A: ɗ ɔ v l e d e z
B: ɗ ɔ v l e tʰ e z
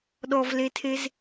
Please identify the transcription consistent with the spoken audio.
B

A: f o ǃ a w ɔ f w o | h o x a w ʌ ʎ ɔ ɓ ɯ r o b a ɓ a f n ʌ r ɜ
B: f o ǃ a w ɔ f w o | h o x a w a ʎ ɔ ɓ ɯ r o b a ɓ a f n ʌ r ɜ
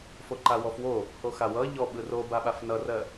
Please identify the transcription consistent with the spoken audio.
A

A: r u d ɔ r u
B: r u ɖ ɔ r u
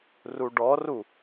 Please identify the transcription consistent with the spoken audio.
B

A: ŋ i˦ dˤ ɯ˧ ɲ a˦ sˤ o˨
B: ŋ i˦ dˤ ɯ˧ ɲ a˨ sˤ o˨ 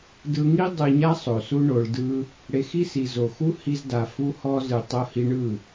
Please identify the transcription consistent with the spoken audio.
A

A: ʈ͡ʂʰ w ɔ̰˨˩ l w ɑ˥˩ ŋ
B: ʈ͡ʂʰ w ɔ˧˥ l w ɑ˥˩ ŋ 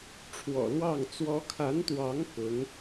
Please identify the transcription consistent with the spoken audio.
A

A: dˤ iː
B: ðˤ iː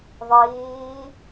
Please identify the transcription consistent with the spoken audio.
B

